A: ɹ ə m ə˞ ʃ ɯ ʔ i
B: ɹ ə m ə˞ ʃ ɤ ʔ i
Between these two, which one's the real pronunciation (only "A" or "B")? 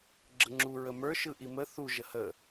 A